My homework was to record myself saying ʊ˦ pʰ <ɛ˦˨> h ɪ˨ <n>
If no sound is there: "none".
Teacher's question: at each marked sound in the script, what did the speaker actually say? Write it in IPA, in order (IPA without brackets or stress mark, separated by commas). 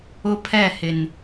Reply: ɛ˦˨, n